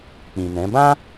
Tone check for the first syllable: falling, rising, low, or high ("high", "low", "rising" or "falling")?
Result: low